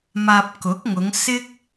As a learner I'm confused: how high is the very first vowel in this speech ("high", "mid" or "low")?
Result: low